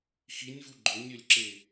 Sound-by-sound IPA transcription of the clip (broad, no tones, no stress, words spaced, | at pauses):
xinʲvu ɡ͡ǃɵnʲɵlʲǁe